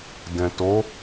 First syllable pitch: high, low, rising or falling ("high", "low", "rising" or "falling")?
low